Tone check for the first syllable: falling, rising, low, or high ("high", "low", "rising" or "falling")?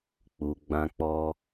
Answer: low